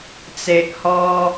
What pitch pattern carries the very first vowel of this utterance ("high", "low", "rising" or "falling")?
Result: low